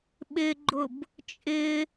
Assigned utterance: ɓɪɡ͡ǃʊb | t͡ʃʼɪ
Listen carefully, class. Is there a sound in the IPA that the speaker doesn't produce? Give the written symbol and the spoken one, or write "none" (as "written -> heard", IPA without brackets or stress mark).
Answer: none